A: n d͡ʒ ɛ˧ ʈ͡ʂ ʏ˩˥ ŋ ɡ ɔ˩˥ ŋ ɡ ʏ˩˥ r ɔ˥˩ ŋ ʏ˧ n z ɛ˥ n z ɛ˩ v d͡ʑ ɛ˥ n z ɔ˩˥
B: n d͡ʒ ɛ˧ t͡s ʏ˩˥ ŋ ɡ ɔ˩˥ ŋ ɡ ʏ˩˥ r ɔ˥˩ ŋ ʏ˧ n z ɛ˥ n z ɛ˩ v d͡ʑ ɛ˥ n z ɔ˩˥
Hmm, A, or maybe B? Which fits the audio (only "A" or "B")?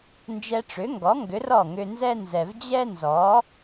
A